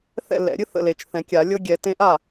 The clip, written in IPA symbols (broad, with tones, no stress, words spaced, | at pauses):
θɛ̰˥˩lɛ̰˨˩˦ ɾʲɨ˦ θə̰˥˩le˨t͡ʃθɛ̃˨˩˦kʲa˨˩˦ lʲɤ˦ɡʲɛ˨˩˦ tẽ˦ ʔa˥˩